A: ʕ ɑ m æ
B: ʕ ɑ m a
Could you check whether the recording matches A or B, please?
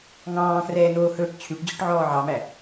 A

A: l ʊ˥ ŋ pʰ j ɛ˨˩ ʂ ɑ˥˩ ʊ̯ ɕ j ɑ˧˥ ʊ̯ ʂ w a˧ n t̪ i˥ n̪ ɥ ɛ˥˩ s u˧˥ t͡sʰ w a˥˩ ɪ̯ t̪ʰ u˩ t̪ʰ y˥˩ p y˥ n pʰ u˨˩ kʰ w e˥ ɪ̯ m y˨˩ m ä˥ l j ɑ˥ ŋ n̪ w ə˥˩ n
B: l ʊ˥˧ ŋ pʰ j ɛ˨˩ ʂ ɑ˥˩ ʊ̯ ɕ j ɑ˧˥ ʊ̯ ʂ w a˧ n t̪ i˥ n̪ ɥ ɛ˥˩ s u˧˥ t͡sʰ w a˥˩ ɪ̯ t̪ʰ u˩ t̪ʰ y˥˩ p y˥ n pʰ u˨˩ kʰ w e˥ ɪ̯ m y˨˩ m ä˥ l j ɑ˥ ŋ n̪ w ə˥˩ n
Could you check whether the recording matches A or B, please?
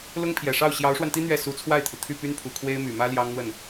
A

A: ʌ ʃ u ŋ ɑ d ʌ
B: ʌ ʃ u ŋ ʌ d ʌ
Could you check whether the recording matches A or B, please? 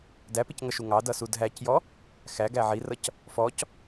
A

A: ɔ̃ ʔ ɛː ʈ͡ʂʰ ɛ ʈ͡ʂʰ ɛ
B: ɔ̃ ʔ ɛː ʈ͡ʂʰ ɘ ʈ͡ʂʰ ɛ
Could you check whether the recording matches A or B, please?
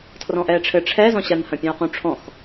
B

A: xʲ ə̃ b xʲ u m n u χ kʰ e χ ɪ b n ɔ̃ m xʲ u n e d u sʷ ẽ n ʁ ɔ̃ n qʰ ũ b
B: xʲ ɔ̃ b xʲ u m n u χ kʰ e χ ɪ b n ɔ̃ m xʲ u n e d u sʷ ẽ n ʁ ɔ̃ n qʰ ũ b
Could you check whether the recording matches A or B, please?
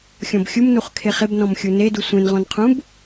B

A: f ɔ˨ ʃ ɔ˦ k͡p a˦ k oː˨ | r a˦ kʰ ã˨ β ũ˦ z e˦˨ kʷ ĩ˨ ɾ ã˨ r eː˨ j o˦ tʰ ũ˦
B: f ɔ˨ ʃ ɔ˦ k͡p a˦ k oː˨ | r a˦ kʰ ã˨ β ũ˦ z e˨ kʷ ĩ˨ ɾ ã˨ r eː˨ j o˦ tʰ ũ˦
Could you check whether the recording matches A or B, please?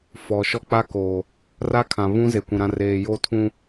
B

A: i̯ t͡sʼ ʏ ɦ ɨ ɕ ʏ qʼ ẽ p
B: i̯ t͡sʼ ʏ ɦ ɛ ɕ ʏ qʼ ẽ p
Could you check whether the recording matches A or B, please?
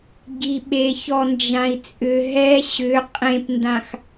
B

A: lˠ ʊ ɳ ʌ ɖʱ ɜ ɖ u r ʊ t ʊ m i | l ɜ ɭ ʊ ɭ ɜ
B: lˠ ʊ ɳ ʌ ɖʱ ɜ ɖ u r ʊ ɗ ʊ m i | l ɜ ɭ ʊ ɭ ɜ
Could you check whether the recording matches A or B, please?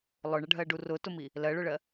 A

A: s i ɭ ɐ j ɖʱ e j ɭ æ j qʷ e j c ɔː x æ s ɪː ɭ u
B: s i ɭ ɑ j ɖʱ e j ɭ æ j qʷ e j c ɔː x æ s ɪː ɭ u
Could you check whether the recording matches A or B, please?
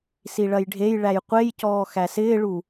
A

